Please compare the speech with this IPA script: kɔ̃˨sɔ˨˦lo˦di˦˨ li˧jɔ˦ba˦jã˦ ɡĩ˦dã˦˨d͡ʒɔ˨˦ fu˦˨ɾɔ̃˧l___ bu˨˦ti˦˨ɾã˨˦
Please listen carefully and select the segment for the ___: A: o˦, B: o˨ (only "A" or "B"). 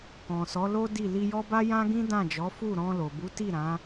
B